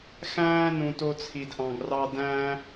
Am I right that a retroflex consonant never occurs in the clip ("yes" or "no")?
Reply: yes